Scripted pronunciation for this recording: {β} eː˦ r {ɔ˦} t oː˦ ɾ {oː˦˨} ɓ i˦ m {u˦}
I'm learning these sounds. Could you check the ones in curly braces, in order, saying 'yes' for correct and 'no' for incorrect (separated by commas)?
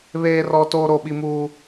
yes, yes, no, yes